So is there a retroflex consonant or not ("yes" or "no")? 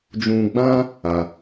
no